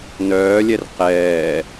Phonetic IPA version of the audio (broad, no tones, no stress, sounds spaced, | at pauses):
n œː lʲ ɛ r q ɛː